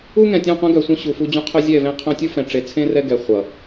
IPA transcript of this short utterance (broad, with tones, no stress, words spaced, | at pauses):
u˦ŋɛ̃˨tʲũ˦˨qʷẽ˦ ɡœ˨sʷœ̃˦ ɕu˨ fu˦d͡ʑũ˦ qʰœ˦zʲɛ˦˨vẽ˦qʰœ̃˦ tʲu˦fɛ̃˨ʈ͡ʂe˨t͡sʰẽ˦ rɛ˦ɡɛ˨ χʷʌ˨